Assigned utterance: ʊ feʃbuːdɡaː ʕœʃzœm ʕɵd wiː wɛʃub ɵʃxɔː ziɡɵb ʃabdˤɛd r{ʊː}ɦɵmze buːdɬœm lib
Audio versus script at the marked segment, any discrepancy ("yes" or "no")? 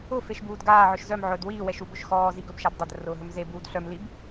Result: no